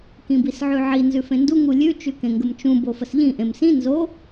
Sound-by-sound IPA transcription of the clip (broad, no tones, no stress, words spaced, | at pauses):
kĩbisʕʉʕi nzʉfẽndu ŋulʲʉ t͡ʃʉkẽŋɡəmt͡ʃũ bofəsʎĩ ʔẽmsĩ nzo